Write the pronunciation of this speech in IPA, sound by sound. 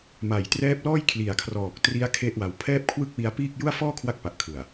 m a˨˩ j t r ɛː˦˥ p̚ l ɔː˥˩ j kʰ l i˨˩ a̯ kʰ r ɔː˨˩ k̚ t r i˦˥ a̯ kʰ e˥˩ ʔ w a˧ w pʰ ɛː˥˩ p̚ kʰ w ɯ˥˩ k̚ w i˦˥ a̯ p iː˥˩ k̚ j u˥˩ a̯ f ɔː˥˩ kʰ w a˦˥ k̚ p a˨˩ ʔ kʰ ɯ˨˩ a̯

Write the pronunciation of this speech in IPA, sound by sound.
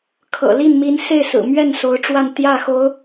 kʰ ɤ̰˨˩ l i˥˩ n m i˧˥ n s e˥˩ ɪ̯ s ɹ̩˨˩ m ɥ ɛ˥˩ n s o˧˥ ʊ̯ ʈ͡ʂ w a˥˧ n t̪ j ä˥˩ x o˧˥ ʊ̯

